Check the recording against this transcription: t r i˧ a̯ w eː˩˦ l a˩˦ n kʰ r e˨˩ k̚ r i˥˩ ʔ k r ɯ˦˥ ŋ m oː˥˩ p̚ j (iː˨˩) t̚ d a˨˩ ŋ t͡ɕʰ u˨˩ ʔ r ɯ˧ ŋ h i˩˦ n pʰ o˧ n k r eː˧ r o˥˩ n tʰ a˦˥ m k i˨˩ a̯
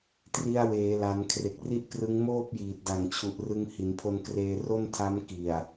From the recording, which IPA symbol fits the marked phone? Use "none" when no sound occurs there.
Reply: iː˨˩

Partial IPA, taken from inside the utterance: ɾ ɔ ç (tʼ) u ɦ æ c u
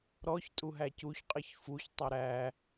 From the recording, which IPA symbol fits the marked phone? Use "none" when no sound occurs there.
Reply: tʼ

